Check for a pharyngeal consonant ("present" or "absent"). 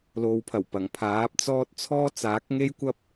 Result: absent